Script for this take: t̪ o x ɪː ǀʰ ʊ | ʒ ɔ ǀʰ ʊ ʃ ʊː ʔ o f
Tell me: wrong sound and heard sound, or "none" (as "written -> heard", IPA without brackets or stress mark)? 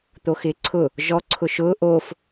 none